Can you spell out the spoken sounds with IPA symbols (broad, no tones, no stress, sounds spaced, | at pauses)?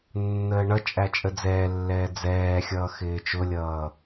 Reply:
nː əː ɳ ʌ t͡ʃʼ æ t͡ʃʼ ə d͡z ɛː lː ɛː d͡z ɛː xʲ ʌː x ɪː t͡ʃ ʊ lʲ ʌː